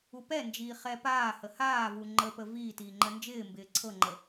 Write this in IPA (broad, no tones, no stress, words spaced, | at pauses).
upɛnd͡ʒiː χɛpaːhə haː vuŋ͡ǃəpə viː tiːŋ͡ǃənd͡ʒɪːmbɪː ǀʰɤŋ͡ǃə